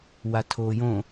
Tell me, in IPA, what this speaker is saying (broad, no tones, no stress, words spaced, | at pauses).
watʰoːjõ